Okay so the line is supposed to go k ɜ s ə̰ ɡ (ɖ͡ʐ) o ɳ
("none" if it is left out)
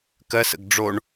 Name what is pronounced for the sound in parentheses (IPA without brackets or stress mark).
ɖ͡ʐ